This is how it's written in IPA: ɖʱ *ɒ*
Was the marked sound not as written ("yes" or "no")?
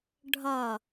no